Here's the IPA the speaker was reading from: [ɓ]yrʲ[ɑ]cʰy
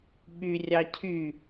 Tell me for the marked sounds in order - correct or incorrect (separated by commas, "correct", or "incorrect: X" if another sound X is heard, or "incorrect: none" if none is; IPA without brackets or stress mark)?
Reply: correct, correct